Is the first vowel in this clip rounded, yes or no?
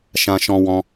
no